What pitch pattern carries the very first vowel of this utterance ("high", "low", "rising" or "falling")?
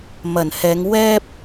low